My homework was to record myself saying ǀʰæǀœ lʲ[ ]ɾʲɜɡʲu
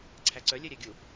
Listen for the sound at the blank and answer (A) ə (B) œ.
B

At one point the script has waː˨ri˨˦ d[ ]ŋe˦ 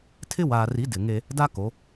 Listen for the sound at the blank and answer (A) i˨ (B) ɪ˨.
B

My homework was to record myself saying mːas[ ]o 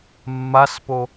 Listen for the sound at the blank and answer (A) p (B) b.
A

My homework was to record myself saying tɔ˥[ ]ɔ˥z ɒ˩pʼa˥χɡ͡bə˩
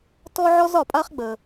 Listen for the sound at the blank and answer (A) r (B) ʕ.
B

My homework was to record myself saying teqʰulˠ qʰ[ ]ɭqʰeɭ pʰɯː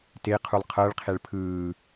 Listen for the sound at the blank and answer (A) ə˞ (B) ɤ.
B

